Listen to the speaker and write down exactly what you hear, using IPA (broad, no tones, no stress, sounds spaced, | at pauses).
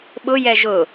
ɓ ʊ j ɛ ʒ ʊ